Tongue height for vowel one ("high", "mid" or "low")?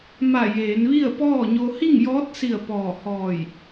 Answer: low